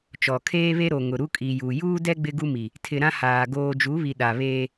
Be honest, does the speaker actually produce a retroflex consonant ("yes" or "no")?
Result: no